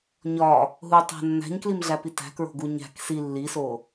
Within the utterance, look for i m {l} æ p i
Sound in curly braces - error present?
yes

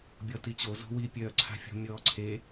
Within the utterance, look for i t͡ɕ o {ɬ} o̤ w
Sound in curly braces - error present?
yes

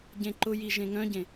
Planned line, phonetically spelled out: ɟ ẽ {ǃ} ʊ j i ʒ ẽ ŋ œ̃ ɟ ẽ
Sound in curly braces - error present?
no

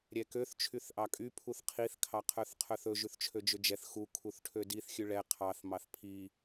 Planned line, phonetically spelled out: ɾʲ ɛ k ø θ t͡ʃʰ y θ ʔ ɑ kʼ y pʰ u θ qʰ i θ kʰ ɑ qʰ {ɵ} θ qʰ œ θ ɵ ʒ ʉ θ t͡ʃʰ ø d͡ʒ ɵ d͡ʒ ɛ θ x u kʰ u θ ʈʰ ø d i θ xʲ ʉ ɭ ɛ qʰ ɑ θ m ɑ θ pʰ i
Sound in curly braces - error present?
yes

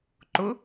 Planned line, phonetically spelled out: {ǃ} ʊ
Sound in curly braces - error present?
no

